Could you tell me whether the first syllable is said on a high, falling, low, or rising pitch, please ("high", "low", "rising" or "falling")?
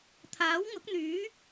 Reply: rising